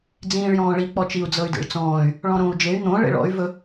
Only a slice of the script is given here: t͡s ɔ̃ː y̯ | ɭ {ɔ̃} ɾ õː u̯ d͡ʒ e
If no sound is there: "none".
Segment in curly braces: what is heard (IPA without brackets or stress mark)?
ɔ̃